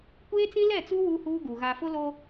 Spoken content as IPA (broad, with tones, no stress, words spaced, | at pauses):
kʷeː˦t͡sĩ˦lɛ˦˨t͡su˦ wu˦huː˦ɡu˨ ɣa˨fʊ˦loː˦